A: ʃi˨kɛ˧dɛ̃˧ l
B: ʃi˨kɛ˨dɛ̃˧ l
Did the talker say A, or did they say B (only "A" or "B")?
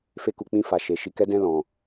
A